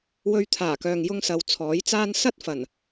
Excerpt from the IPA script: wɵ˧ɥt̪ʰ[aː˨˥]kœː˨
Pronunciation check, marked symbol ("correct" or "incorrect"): incorrect